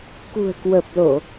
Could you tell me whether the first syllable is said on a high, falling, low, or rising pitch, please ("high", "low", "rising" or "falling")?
low